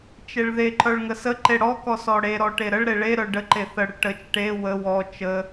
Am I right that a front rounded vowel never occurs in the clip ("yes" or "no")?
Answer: no